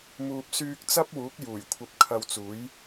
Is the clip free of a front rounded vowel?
no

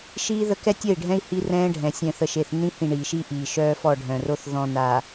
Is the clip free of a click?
yes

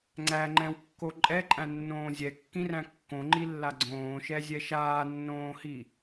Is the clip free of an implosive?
yes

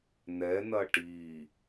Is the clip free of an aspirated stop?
yes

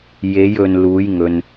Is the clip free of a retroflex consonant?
yes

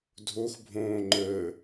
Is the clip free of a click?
no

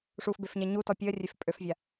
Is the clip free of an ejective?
no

